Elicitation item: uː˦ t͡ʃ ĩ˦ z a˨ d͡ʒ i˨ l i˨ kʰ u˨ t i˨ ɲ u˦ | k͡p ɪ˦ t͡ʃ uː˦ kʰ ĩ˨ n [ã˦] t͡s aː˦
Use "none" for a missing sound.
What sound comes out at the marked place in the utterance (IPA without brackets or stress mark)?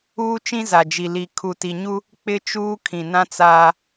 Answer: ã˦